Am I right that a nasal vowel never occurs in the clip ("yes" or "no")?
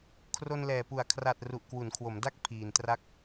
yes